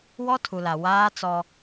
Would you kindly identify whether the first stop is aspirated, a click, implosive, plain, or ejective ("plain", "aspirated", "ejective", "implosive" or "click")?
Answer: aspirated